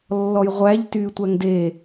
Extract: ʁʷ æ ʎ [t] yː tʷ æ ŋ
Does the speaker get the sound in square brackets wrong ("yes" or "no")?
no